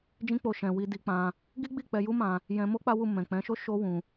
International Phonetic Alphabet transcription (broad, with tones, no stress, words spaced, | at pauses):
d͡ʒĩ˦k͡po˧ʃɛ̃˨wi˧ di˧k͡pã˧ | ɡi˦ɡ͡bi˦˨k͡pɛ˧ju˦ mã˧ | jɛ̃˧mo˦ k͡pa˦wu˦˨ mɛ̃˨k͡pɛ̃˨˦ʃo˦ ʃo˦wũ˧